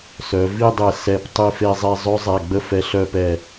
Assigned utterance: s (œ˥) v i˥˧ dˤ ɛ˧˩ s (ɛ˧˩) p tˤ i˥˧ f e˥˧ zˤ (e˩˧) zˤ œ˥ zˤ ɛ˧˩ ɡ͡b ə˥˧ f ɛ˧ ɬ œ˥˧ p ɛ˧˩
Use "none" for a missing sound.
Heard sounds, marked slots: œ˩˧, ɛ˧˩, e˥˧

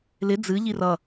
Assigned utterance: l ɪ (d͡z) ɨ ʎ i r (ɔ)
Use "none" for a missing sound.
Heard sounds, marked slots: d͡z, ʌ

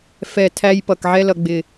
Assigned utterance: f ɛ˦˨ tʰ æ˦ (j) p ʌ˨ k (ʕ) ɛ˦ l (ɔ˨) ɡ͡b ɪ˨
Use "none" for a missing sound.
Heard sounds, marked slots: j, ʕ, ʌ˨

